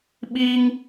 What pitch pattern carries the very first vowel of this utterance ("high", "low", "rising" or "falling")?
high